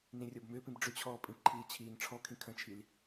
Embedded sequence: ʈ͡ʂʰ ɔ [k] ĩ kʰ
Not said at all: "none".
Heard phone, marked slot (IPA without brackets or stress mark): kʰ